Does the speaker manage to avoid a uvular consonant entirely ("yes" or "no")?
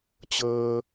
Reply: yes